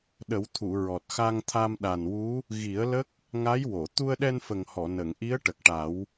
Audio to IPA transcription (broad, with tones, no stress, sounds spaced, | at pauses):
ɗ ə˨˩˦ w t̪ʰ u˨˩˨ ɹ ɔ˨˩ t̚ x a˧ ŋ t̪ʰ a˧ m ɗ a˨˩ n w u˧˥ | ɣ i˨˩˦ ə̯ l ə˦˥ k̚ | ŋ a˧˥ j w o˨˩˨ t̪ u˧ ə̯ ɗ ɛ˧ n f ə˨˩ ŋ h ɔ˨˩˨ n ə˨˩˨ ŋ ʔ i˧˥ ə̯ ʈ ə˨˩ k̚ ʈ a˨˩˦ w